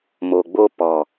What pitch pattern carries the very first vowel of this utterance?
low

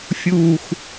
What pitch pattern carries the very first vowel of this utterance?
low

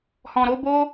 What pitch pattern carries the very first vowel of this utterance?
low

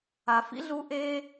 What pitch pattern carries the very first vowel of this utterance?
low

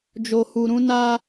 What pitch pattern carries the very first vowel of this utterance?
high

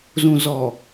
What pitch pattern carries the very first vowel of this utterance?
low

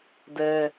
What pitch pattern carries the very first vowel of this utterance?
high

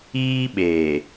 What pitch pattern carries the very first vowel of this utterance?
high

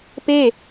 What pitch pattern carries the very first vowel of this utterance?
falling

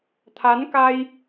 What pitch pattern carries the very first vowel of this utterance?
rising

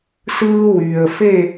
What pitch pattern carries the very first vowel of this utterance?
high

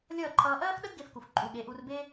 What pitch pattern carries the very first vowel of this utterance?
falling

